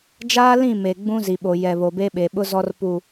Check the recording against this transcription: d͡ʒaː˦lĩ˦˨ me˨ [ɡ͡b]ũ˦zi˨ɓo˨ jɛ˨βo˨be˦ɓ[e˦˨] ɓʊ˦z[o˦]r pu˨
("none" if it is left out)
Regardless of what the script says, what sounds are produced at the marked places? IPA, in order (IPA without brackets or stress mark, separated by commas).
ɡ͡b, e˨, ɔ˦